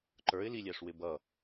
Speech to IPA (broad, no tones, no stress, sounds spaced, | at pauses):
ǃ ə˞ ɪ̯ l i lʲ æ ʂ w ɪ b ʌ